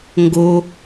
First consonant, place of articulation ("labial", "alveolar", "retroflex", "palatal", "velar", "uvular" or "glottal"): velar